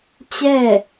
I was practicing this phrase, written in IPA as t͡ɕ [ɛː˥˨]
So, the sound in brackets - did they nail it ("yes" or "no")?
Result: yes